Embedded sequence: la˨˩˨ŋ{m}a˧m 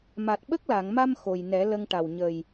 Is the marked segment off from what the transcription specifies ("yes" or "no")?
no